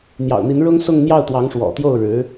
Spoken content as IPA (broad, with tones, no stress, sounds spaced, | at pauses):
n̪ j ɑ̰˨˩ ʊ̯ n̪ i˧˥ n ɻ ʊ˥ ŋ s ʊ˥˧ ŋ n̪ j ɑ˥˩ ʊ̯ t̪ w ɑ˧˥ ŋ ʂ w ɔ̰˨˩ t̪ j o˥˩ ʊ̯ ɻ ɻ̩˧˥